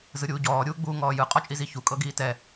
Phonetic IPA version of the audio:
z ɯ ɾʲ uː ɟ ɔː ɾʲ uː ɡ͡b uː ŋ ɔː j ɯ qʼ ɔ t͡ʃʼ i z i ç u kʼ ɤ ɡ iː t ɛ

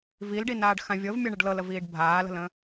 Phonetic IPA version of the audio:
v i l ɖ i n aː ɖ x ã vʲ ɤ v mʲ ɤ ɳ ə ɖ l ɤ l ə v iː ɖ bʱ aː l ə̤ l ə̃

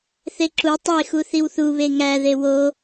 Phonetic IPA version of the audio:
θ e ǁ u tˤ e x u θ i w θ u β e ŋ æ ð e w o

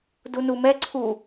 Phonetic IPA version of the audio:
d u n u m ɛ ǀʰ u

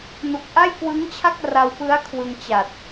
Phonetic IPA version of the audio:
n u˨˩ k̚ ʔ a˥˩ j k w ɯ˦˥ ŋ t͡ɕʰ a˥˩ k̚ r a˧ w p ɯ˦˥ a̯ kʰ w ɯ˧ ŋ t͡ɕ a˨˩ t̚

